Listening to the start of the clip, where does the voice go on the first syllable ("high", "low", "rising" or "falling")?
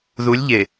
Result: rising